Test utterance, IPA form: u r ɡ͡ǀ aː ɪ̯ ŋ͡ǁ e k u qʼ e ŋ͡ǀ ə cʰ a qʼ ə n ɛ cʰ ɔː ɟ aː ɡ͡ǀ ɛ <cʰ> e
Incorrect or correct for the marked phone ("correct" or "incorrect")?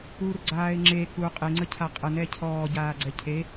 correct